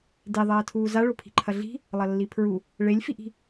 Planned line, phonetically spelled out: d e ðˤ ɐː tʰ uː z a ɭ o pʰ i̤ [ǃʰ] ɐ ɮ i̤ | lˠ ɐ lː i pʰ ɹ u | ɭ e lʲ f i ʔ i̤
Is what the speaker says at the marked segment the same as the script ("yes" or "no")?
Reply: yes